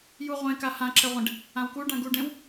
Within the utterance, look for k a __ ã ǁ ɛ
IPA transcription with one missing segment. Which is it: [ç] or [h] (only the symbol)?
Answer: h